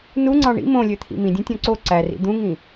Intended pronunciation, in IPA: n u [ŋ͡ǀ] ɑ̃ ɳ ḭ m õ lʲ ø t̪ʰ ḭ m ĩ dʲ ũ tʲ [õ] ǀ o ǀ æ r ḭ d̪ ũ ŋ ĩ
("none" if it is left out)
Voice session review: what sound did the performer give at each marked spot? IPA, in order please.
ŋ͡ǀ, õ

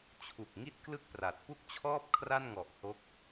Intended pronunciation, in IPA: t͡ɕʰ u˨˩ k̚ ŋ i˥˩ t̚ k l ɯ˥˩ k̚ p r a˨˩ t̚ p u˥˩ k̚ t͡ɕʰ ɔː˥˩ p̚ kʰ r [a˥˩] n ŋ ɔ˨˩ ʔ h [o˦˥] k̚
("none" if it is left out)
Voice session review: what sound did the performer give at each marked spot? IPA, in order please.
a˥˩, o˦˥

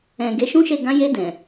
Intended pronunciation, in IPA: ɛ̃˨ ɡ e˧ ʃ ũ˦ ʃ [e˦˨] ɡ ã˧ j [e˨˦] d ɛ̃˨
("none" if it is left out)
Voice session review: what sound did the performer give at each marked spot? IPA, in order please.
e˦˨, e˧

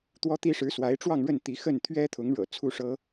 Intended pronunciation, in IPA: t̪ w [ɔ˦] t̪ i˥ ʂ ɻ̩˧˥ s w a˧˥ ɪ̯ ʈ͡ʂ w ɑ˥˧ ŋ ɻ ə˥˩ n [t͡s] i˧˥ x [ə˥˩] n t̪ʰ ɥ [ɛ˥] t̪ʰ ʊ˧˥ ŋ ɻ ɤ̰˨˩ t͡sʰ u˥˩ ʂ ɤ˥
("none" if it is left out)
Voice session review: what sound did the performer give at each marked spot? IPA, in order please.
ɔ˥, t̪, ə˥˩, ɛ˥

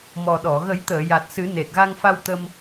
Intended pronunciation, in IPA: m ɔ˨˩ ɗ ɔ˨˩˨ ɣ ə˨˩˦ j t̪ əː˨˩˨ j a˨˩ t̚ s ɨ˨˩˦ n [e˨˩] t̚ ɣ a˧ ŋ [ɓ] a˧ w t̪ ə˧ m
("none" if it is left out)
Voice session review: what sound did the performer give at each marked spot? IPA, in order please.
e˨˩, f

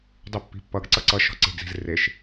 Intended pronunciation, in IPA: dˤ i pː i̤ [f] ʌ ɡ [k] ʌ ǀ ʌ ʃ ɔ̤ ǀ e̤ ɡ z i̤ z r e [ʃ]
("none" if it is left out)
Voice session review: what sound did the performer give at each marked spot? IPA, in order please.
pː, ǀ, ʃ

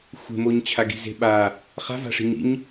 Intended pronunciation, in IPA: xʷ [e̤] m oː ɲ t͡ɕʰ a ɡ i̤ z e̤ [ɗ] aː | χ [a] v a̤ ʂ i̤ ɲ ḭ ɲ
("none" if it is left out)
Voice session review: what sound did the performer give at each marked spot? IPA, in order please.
e̤, ɓ, a̤

